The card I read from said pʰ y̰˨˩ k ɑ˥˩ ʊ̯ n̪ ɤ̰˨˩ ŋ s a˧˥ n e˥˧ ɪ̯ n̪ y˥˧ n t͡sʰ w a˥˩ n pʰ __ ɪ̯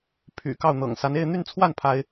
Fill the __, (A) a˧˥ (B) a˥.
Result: B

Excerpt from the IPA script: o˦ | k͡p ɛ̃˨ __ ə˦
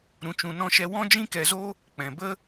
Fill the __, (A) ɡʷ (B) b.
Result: B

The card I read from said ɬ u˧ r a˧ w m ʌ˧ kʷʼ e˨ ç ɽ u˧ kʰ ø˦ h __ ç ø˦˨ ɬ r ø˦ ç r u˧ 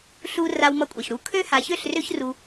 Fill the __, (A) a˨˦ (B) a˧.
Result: A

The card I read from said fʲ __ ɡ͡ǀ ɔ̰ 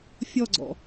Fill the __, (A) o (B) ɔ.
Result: B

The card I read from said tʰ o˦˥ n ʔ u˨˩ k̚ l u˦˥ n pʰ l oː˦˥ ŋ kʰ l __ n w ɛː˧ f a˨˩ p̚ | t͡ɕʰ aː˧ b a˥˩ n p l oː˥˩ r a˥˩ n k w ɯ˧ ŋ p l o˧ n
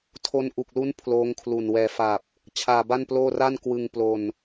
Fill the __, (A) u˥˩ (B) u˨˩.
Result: B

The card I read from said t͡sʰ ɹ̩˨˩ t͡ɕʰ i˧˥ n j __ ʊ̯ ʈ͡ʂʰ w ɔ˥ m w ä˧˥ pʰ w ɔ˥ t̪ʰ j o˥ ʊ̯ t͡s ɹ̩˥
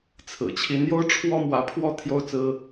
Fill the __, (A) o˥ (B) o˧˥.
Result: A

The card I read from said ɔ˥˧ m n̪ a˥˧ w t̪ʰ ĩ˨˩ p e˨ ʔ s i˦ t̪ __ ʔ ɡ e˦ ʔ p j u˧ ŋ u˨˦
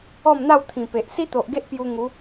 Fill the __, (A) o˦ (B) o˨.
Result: B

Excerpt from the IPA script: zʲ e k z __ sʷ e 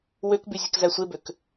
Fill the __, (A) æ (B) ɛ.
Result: A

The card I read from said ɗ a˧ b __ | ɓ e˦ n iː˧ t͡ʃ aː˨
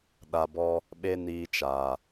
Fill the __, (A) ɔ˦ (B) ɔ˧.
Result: A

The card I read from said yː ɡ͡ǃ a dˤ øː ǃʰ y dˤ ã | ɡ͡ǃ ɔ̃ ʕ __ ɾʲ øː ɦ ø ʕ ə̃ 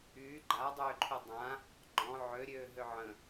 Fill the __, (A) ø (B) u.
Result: A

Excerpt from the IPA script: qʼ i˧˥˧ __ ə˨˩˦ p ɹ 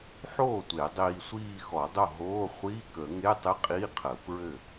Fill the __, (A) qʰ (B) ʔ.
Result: A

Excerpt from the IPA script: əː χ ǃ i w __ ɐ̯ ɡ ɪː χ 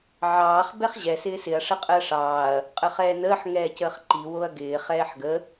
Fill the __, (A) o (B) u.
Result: A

